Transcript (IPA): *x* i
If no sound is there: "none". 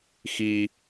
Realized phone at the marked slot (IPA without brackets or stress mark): x